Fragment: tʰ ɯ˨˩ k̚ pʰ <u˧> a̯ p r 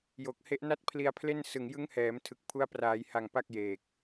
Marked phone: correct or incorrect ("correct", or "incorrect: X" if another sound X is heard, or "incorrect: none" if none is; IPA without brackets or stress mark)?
incorrect: u˦˥